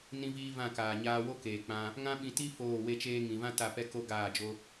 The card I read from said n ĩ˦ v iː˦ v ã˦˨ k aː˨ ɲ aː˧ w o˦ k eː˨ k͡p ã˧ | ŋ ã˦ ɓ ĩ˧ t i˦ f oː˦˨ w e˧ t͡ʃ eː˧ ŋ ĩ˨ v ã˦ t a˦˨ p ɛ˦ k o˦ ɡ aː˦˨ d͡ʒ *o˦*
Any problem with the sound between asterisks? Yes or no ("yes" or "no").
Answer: no